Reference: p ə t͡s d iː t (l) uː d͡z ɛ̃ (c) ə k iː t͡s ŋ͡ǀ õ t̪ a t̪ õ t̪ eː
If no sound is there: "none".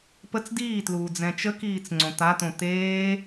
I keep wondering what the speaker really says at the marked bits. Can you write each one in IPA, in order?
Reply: l, t͡ʃ

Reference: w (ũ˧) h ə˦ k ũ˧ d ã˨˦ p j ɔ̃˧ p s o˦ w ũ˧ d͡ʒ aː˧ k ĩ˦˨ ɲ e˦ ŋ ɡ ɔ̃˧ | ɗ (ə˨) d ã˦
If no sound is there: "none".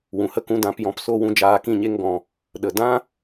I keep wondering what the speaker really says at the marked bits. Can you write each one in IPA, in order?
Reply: ũ˨, ə˨

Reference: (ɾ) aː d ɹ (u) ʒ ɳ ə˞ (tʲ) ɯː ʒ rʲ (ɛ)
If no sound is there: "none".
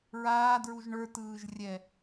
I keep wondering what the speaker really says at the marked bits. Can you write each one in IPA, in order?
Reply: ɹ, u, t, ɛ

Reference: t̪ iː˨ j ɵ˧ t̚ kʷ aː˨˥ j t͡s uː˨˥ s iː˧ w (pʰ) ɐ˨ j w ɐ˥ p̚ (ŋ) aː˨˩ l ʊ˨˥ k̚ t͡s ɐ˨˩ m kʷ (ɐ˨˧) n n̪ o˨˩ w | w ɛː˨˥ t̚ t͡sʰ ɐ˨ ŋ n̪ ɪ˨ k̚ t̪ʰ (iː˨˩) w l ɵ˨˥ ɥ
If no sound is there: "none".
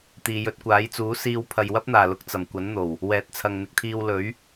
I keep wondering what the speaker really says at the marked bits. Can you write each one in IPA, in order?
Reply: pʰ, n̪, ɐ˨˥, iː˧

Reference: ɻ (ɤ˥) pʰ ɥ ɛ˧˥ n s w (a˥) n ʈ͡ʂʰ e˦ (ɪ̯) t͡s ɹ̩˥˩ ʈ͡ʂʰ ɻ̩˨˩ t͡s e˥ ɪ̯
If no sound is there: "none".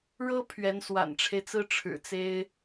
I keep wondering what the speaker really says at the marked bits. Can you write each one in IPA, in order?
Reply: ɤ˥, a̰˨˩, ɪ̯

